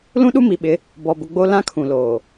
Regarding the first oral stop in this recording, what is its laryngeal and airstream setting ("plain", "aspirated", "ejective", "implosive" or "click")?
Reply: implosive